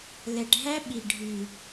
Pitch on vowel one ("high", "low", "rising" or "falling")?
low